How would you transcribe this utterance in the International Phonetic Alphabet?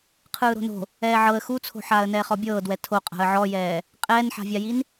qʰ ɯː ɾ o̤ n o̤ | ɛː ʕ ɤ ə̯ x u t͡sʰ o̤ ħ aː ə̯ n ɛː χ ɔ bʲ ɤː d w ɛ tʰ o qʼ a̤ ə̯ ʕ ɔ j ɛː | qʼ ɛː n ħ a̤ vʲ a j i n

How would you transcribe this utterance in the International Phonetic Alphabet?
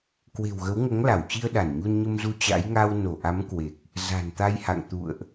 k w e̤˨˩ w ɣ ə˨˦ w ŋ o˨˦ ŋ l a˧˩ w t͡ɕ i˧ ə̯ ɗ a˧˩ n ɲ u˧ n ɲ ə˧ m z u˧ t͡ɕ a̰˧˥ j ŋ a˧ w n o˧˩ ʔ a˨˦ m k w e˨˩ k̚ | z a̤˨˩ n t̪ a˧ j h a̰˧˨ ŋ t̪ ṵ˧˨ ə̯ ʔ

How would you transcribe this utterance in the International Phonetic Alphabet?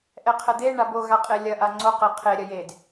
ʔ ɛ qʰ ɛ d̪ e ɳ a b o ɣ a qʼ e lʲ ɐ ʔ a ŋ͡ǀ o q ɛ qʰ e ɾʲ ɐ j e d

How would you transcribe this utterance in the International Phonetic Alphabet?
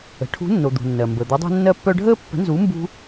ə̤˩˥ ʈʰ ṳ˧˥ nː o˨ d̪ ṳ˨ nː ɜ˨ m b ə˨ d̪ œ˧˥ dˤ o̤˥ nː ɜ˥ pː œ˥ ɖʱ əː˥ pː ə̤˧˥ n z u˧˥ m b ṳ˥

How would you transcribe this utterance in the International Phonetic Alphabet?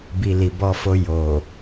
b i˧ l i˨ b ɔ˧ f o˧ j o˨

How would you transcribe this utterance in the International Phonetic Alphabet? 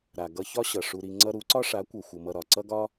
ɾ a˨ ɡ ʌ˧ ç ɒ˦ ɕ ʌ˨ ʂ u˧ ɾ i˧ ŋ͡ǀ ʌ˧ ɾ u˨˦ ǀ ɒ˦ ʂ a˨˦ kʷ ʌ˨ xʷ ʌ˧ m ʌ˧ ɾ ɒ˨ ǀ ʌ˦ ɡ ɒ˦

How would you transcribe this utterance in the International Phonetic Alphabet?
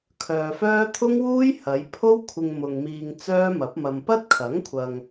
kʰ œː˨ f œː˥ t̪ʰ ʊ˥ ŋ w uː˥ j h ɐ˨˧ j pʰ o˥ w kʷʰ ɪ˧ ŋ m ʊ˨ ŋ m iː˧ ŋ t͡s œː˥ m ɐ˨˥ p̚ m ɐ˧ m p ɐ˥ t̚ kʰ ɐ˨˥ ŋ kʷʰ ɐ˨ ŋ

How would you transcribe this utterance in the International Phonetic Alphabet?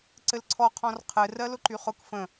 ǀ ɘ l ǀʰ ɔ qʰ ɔ̃ r qʰ ɘ r ɜ l ʊ ǃ y χ ʊ k f ə̃

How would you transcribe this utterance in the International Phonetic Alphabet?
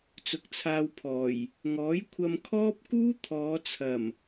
t͡s ʊ˨ k̚ t͡sʰ aː˧ w pʰ ɔː˨˩ j | ŋ ɔː˨˥ j kʷʰ ɐ˧ m kʰ ɔː˥ p̚ k uː˥ t̪ʰ ɔː˨˧ t͡sʰ ɐ˨˩ m

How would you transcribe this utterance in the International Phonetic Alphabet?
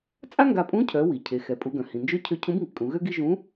t͡sʼ a˥ ŋ ɡ a˧ pʼ ũ˧˥ cʰ œ˩˧ w i˩ cʰ e˩˧ x ɛ˩ pʼ u˧ ɡ œ̃˩ h ĩ˩ n d͡ʒ ø˥ cʰ ø˧˥ cʰ ũ˧˥ b ŋ i˩ kʼ ũ˩˧ ɣ ø˥ ɡ i˥ ʒ ũ˧˥

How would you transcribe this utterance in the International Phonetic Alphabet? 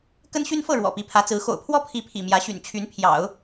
k ə˥ n ɕ y˥ n f ɤ˥˩ ɻ w ɔ̰˨˩ p i˧˥ pʰ ä˧˥ t͡s ɹ̩˧˥ x o̰˨˩ ʊ̯ pʰ w ɔ˥˩ pʰ i˧˥ pʰ ḭ˨˩ m j ä˧˥ ɕ y̰˨˩ n t͡ɕʰ y˧˥ n pʰ j ɑ̰˨˩˦ ʊ̯

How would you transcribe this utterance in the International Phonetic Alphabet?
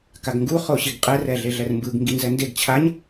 k a ɡ ŋ ɡ u χ o ɕ i ɡ qʼ ɛ r ɛ ɮ e ɮ ɛ r m b ɯ ɡ ŋ ɡ i n z ɛ n d e ɡ t͡ɕʰ a ɲ

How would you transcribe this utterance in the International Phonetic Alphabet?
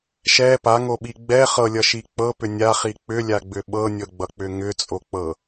ʃ ɛ p a ŋ o ɓ i ɡ͡b ɛ χ ɤ lʲ ʌ ʃ i k͡p ɤ p ʏ nʲ a χ i k͡p ʏ lʲ a ɡ͡b ʏ ɓ ɤ nʲ ɤ ɡ͡b ʌ k͡p ʏ ŋ ʏ t͡sʼ o k͡p ɤ

